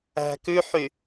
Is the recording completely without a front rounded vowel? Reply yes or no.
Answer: no